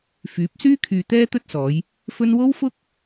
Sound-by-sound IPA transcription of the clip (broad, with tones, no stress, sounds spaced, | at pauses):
f yː˨˥ p̚ s yː˥ kʰ yː˧ t̪ ɛː˥ t̪ ɵ˥ t̚ s ɔː˨˧ j | f ɵ˥ n w o˥ w f ʊ˥ k̚